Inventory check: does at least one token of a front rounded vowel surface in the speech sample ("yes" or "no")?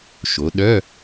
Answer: yes